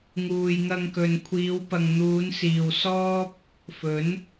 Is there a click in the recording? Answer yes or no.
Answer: no